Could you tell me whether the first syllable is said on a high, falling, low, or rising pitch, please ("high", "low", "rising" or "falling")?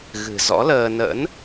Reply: low